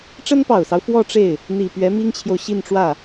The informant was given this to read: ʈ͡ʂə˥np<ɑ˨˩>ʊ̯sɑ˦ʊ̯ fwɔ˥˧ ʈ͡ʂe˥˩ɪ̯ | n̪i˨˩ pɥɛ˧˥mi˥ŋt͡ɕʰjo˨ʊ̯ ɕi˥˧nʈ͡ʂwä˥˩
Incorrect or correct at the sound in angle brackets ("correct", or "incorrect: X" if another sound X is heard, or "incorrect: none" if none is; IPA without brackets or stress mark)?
correct